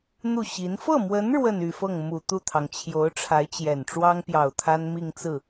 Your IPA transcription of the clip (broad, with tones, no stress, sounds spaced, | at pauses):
n̪ u˥˩ ɕ i˧˥ n f ɤ˥˩ m w ə˧˥ n ɻ w ə˥˧ n y˥˧ f ɤ˥˩ ŋ m u˨˩ t̪ u˥˩ t̪ʰ ɑ˩ ŋ t͡ɕʰ j o˧˥ ʊ̯ ʈ͡ʂʰ a˧˥ ɪ̯ t͡ɕ j ɛ˨˩ n ʈ͡ʂ w ɑ˥ ŋ p j ɑ˨˩ ʊ̯ t̪ʰ a˥ n m i˥˧ ŋ t͡s ɹ̩˥˩